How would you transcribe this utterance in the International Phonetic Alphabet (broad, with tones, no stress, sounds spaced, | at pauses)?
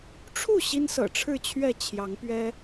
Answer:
ʈ͡ʂʰ u˥˨ ɕ i˦ n s ɤ̰˨˩ ʈ͡ʂʰ ɻ̩˥˨ t͡ɕʰ ɥ ɛ˥˨ t͡ɕʰ j ɑ˨˦ ŋ p ɥ ɛ˦